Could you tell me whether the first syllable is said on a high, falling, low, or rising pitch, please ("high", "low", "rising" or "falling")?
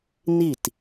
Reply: falling